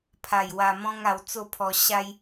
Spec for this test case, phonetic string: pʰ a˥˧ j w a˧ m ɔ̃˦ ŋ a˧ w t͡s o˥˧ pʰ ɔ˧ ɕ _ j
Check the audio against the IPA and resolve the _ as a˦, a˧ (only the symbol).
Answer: a˦